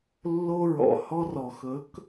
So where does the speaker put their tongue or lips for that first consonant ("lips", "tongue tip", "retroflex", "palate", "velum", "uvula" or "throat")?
tongue tip